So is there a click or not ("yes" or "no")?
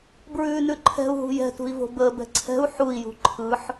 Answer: yes